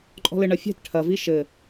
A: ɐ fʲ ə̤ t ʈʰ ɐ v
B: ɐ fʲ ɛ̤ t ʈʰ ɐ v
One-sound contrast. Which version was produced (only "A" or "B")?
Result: B